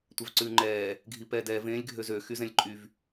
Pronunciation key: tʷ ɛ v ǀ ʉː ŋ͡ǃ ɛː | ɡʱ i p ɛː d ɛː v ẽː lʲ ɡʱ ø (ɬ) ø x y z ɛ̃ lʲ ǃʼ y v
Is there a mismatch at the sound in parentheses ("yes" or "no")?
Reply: yes